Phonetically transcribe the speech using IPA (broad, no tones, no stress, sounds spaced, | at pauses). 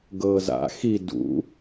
ɡ ɤː z a̰ x i d ṵ